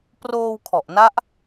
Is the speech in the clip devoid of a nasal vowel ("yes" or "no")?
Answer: yes